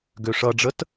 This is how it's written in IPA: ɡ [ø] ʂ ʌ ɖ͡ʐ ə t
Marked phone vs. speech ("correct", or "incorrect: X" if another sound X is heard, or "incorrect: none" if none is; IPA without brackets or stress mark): correct